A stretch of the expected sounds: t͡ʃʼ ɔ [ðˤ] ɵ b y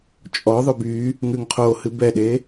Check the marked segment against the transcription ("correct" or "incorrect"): correct